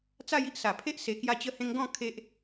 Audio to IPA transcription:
t͡s a˥˧ j i˦ ʔ s a˨˩ pʰ e˦ ʔ s e˨˩ k j a˧ t͡ɕ ə˧ h ẽ˧ ŋ ɡ ɔ̃˥˧ kʰ e˦ ʔ

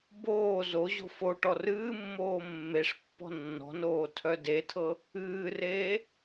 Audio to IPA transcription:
b oː z o ʑ o̤ f o ʈ ɔ r ɨː mː oː mː e ʂ pː ɔ̤ nː ɔ̤ n oː tʰ œ d e tʰ ɤ | ɨː r eː

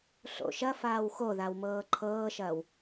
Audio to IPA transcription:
ɬ o̰ ʃ ɐ f aː w x o ð a w m ɤː ǃʰ ɤː ʃ ɐː w

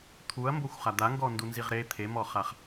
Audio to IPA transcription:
t̪ʰ u ɐ̯ m b o xʷ χ a d̪ a ŋ ɡ ɔ n d u n z i ʁ ɾ e t̪ʰ e m ɔ χ a χ

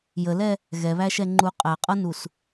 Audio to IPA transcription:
j ə l ɛ | ɣ ɛ β æ ʃ ɛ ŋ͡ǃ u qʼ æ qʼ ʌ n u s

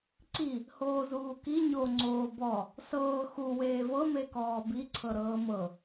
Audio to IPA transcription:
ǀ i | h oː z uː k i ɲ o ŋ͡ǀ oː b ɔ | s ɤː x u w eː v ɤ m e k ɔː b i ǀʰ ɤ ɾ ɤː m ɤ

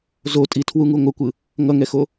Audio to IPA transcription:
z o tʼ i tʰ w u ŋ u ŋʷ ʌ kʷ ɯ | ŋ ʌ ŋ ɛ x o

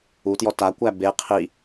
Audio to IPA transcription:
u t j ɔ t a kʷ æ b e qʰ i

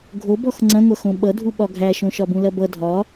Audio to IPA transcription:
ɡʱ o b ɔ x ŋ͡ǀ ɐ̃ ŋʷ ɐ x õ ɓ ʌ dʱ u ɓ ɒ ɡʱ æ ʃ õ ʃ ɒ b ũ l ɐ b ʌ dʱ ɒ

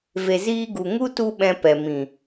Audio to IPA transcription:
v e˧ z iː˦ ɡ u˧ ŋ u˦ t u˦ ɓ ɛ̃˧ p ɛ˨ m ĩ˨

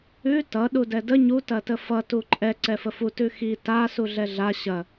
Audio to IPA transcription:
ʉ t ʌ ɗ u d ɛ d ə ɲ u t ɐ t ə f ʌ t u ǃʼ ɛ ǀ ɛ f ə f u t ʉ x i t a s u ɮ ɛ ɮ a ɕ ɐ

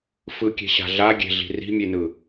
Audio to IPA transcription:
f ɯ kʲ e̤ ɕ a̤ ɮ a ɡʲ e̤ ɮ i̤ r i̤ mʲ e n ɯ

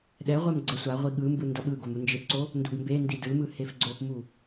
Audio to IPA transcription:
ɗ ɛ ʁʷ ɛ m ɡ͡ǀ ʌ sʷ a ʁʷ i ɠ ɯ m b ɯ n d ʌ ɓ ɯ ɡ o m u n d͡ʒ e p ǀ o | n d u ɡ m b e n d i d ɯ m ɯ h e f ɡ͡ǀ o p m u

